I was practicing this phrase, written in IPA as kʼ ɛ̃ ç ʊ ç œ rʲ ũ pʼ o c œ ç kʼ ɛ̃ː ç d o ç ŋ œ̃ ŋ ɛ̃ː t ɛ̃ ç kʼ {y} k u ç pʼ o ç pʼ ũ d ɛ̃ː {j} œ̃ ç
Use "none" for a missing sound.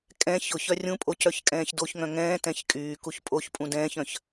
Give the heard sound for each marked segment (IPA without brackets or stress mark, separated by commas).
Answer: yː, ç